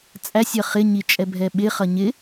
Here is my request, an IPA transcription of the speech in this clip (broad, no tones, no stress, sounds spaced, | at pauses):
t͡sʼ æ sʲ ʌ χ ɪ ɲ i t͡ʃʼ ɛ bʱ ɛ ɓ ɪ χ ʌ ɲ ɪ